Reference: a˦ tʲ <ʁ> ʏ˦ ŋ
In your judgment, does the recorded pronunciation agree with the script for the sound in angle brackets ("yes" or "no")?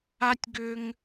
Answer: no